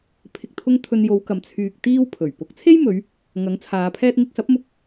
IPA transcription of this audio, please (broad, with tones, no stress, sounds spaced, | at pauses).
pʰ ɪ˨ k̚ t̪ʰ ʊ˧ ŋ t̪ʰ ɵ˧ n j o˨˧ w k ɐ˨ m t͡sʰ yː˧ k̚ t̪ iː˥ w pʰ ɵ˨˩ ɥ p ʊ˨˥ k̚ t͡sʰ e˥ j m ɵ˨˧ ɥ | ŋ ɐ˨˥ ŋ t͡sʰ aː˨˧ pʰ ɛː˥ t̚ ŋ ɪ˧ k̚ s ɐ˨˥ p̚ m ʊ˧ k̚